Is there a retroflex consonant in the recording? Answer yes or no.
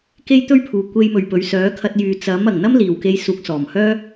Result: no